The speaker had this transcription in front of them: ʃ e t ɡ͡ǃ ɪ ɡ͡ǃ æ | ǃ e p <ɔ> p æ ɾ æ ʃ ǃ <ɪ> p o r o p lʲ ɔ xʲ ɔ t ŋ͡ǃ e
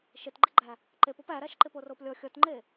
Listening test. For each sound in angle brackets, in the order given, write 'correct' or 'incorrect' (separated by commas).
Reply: correct, correct